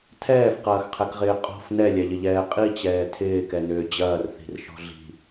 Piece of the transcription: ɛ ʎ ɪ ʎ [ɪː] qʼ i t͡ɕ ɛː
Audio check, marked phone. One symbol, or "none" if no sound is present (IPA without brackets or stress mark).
ɛː